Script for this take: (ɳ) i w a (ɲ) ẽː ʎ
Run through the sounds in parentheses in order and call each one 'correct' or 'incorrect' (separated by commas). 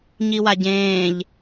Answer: incorrect, incorrect